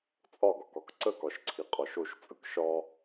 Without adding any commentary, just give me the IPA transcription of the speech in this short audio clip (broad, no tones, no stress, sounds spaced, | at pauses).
t͡sʼ ɒ ɡ ɒ k ɒ k ǀ ə k ɒ ʃ ǀʰ i qʼ ɒ ʃ o ʃ t͡sʼ ɯ k ʃ ɒ